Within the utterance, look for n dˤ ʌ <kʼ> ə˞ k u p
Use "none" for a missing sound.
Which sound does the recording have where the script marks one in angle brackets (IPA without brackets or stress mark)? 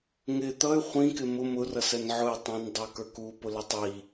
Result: k